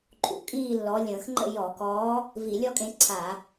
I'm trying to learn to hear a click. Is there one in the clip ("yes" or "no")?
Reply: yes